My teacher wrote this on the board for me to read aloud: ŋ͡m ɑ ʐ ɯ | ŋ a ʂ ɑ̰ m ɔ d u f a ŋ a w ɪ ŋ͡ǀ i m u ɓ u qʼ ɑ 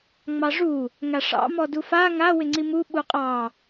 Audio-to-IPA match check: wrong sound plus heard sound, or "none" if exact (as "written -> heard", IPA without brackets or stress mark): ɯ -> u